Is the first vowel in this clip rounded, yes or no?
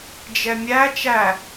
no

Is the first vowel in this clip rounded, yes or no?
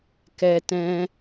no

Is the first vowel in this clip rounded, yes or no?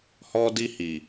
yes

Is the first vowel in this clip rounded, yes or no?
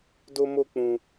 yes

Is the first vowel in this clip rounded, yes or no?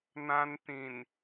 no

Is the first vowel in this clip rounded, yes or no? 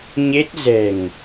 no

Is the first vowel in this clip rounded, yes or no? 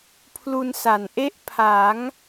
yes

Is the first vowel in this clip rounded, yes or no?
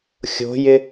yes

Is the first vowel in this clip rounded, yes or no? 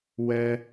no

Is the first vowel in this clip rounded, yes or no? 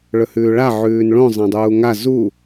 yes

